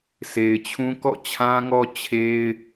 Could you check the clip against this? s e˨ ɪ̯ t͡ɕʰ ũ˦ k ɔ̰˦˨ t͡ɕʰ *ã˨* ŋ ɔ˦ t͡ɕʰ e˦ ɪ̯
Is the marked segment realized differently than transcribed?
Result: yes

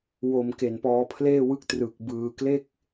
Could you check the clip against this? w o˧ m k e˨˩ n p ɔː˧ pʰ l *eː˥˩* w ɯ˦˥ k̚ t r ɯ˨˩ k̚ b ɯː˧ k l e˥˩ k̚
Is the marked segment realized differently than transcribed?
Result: no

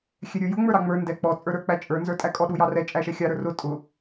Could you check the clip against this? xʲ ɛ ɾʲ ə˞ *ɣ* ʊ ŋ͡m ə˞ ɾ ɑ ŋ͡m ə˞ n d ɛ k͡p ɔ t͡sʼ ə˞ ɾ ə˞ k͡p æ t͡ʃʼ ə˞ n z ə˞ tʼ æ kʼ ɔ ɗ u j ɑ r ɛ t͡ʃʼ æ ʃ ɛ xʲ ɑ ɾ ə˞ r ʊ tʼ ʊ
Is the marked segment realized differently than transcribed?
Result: yes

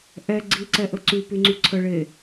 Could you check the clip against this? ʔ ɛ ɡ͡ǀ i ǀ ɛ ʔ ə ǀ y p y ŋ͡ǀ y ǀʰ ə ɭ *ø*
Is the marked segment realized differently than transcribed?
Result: yes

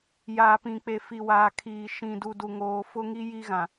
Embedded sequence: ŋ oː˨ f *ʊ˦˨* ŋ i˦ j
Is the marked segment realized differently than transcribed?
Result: yes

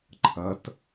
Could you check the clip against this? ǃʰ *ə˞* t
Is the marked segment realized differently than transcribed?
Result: yes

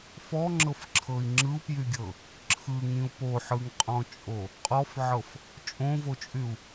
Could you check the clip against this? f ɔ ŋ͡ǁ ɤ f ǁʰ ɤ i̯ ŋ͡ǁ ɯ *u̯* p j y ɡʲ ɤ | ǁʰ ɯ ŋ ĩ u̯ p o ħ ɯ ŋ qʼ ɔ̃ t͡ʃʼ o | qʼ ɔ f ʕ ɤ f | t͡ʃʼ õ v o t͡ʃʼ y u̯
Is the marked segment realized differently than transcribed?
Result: no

